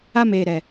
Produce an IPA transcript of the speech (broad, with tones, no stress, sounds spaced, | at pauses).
a˦ m eː˨ ɾ ɛ˨